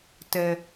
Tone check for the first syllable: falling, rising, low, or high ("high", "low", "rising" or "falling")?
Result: low